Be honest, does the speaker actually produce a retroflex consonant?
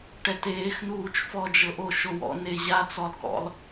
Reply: yes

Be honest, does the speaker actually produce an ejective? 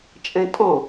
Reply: yes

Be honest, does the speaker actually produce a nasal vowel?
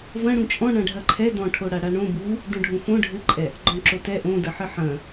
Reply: yes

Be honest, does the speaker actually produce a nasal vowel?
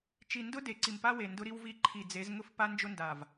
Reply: no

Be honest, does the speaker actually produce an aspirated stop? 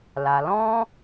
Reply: no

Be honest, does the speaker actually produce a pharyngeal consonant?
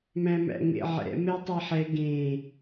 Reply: yes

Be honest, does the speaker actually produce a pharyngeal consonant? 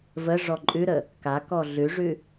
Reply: no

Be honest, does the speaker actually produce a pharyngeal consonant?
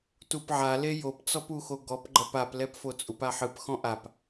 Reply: yes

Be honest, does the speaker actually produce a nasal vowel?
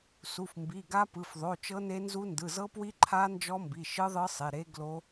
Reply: no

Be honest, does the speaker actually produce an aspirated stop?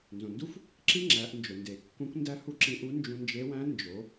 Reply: no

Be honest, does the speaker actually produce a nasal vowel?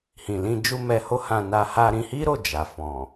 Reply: yes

